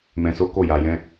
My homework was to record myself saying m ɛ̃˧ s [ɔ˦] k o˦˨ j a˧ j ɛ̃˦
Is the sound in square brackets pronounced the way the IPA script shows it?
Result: no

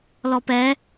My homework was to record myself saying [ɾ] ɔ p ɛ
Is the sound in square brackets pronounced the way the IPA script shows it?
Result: no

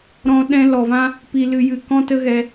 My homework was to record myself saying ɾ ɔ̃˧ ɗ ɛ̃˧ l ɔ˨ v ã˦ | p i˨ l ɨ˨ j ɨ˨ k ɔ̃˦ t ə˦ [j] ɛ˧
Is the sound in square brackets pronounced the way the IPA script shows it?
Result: no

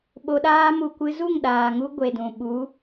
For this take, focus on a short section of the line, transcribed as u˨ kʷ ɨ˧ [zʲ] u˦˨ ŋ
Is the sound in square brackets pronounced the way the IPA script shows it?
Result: no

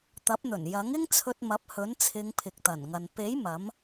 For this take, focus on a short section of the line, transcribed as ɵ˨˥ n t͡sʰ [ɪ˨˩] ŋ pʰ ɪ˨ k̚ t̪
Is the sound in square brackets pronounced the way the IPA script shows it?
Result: no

